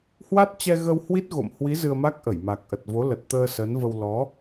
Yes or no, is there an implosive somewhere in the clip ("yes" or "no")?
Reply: no